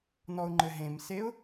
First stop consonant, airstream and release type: click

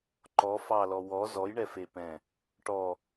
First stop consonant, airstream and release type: click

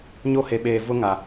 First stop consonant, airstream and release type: implosive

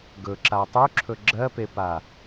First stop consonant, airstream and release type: plain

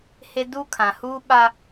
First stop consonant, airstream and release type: plain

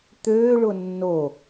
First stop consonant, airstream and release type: plain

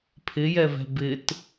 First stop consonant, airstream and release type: aspirated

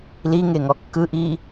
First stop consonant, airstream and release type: plain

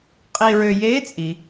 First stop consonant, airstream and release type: ejective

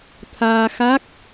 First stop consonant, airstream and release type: aspirated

